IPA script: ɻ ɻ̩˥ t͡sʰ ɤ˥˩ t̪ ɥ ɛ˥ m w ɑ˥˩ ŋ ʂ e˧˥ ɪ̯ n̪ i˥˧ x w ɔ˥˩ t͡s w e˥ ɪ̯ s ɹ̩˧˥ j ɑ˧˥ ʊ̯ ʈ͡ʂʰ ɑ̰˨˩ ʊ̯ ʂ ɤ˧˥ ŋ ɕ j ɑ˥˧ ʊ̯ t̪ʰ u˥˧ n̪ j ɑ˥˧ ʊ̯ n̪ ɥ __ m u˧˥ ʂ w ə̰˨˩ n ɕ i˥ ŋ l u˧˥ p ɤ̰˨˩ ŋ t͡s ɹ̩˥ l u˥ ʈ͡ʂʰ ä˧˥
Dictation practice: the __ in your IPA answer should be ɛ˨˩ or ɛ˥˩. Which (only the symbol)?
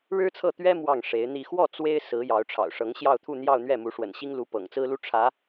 ɛ˥˩